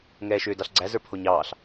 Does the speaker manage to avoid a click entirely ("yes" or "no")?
no